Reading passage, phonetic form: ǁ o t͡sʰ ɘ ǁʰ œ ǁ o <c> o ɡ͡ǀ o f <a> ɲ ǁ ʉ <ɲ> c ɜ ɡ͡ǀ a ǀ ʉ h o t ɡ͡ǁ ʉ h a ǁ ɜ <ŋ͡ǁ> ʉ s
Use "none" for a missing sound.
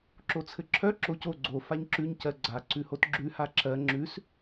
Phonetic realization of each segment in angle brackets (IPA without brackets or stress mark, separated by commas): c, a, ɲ, ŋ͡ǁ